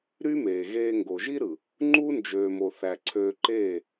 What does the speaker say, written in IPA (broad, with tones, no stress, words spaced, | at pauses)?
ɾy˦meː˨ɣeː˧ ŋɡo˨ʒi˦ɾɯ˨ | ŋ͡ǃu˦nd͡ʒøː˨mo˨ θæ˨ǀʰøː˧ǃeː˦˨